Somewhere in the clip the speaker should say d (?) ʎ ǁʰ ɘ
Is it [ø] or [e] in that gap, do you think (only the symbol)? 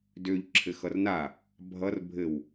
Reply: ø